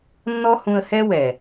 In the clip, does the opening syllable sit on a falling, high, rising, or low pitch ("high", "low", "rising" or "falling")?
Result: high